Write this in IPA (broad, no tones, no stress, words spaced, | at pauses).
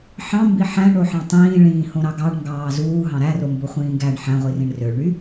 ħɑ̃mbi ħæ̃ɳoħɑ̃ tˤĩːɭĩːhõɾɑ ɡɑɳŋɡɑː zuːɦɑ̃ ɾæromboχʷĩː ɡæɳ ħæ̃ʁʷirĩɳ røɭɳy